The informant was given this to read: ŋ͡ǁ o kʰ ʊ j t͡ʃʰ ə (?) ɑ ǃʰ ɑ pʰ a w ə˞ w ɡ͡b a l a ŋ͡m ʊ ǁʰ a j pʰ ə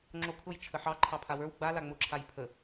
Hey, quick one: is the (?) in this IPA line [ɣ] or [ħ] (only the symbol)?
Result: ħ